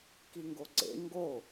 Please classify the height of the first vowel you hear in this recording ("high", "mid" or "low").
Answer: high